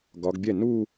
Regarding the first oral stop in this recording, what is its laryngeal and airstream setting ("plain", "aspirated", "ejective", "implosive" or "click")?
plain